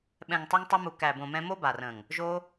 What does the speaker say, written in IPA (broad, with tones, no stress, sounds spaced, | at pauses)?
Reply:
ɓ ɛ̃˨ ŋ tˤ ʌ˧ ŋ tˤ o˧ m u˨ k æ˨ b õ˨ m ɛ̃˧ m o˦ b a˨ r ə̃˨ ŋ | ʒ o˧